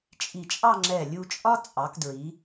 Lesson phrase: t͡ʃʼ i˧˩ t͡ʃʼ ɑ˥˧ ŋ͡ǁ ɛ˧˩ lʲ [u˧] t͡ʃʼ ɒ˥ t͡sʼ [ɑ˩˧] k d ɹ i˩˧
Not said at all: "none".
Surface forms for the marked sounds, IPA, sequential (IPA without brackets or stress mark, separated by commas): u˧, ɑ˩˧